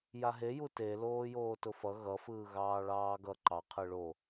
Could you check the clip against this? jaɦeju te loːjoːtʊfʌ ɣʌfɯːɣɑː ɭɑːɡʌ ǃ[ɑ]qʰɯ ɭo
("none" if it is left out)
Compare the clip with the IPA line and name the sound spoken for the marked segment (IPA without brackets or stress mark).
ɑ